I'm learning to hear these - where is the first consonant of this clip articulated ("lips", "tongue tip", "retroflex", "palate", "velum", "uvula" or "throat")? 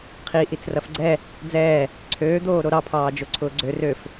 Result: uvula